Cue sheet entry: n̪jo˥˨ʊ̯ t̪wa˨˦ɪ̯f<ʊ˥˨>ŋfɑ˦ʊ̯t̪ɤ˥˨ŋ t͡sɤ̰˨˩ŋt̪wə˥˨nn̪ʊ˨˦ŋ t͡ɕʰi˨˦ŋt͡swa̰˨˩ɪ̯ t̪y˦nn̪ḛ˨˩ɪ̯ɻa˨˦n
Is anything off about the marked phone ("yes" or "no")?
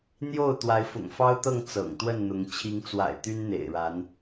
yes